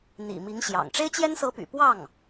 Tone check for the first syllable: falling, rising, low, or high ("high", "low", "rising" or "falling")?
low